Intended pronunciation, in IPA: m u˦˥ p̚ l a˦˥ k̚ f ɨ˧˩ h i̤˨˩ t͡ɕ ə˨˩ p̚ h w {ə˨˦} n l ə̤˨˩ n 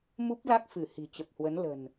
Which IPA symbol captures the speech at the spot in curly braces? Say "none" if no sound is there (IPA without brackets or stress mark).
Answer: ə˨˦